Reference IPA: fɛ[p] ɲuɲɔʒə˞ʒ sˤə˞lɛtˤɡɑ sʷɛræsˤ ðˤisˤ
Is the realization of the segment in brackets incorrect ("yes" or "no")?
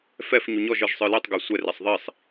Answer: yes